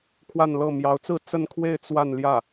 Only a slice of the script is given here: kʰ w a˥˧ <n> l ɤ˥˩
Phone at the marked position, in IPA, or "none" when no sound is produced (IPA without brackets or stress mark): n